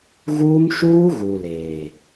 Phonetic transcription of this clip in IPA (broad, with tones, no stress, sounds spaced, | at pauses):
ɣ uː˦ m ʃ uː˦ ɣ u˨ l eː˨